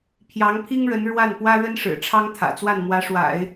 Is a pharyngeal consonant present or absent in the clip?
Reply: absent